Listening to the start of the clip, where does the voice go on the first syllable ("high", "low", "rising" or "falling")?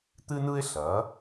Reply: high